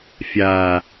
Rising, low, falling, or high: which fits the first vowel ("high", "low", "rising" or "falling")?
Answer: low